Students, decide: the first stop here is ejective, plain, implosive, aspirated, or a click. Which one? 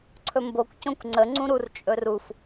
click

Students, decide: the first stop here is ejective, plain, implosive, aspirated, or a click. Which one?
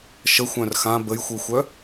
plain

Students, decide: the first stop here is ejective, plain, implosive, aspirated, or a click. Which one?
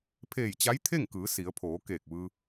aspirated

